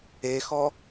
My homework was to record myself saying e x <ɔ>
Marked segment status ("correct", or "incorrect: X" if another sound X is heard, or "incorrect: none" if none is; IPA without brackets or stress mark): correct